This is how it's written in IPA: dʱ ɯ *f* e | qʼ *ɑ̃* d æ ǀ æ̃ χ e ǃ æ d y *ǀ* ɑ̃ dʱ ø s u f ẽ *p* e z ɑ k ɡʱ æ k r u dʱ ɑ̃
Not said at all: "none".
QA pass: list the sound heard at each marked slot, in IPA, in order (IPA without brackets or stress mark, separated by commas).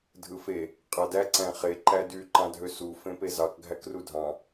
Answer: f, ɑ, ǃ, p